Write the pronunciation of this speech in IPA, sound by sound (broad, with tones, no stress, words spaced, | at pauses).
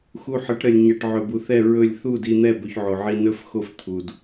xu˧ħə˨˦ʈɾə˨lʲ ɲɛ˨ʈ ʕɵ˨bu˨θɛ˦˨ ɹɵ˦˨lʲ θu˦˨di˧n̪ɛ˦˨ bɵ˦çʕo˧ʕi˦ nɵ˦fxo˦˨f t̪ʰu˨d